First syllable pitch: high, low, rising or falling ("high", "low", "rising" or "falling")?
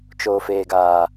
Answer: low